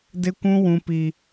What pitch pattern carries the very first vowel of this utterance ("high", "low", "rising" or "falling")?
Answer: high